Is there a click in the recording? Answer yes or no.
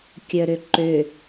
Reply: yes